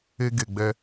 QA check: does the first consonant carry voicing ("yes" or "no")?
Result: yes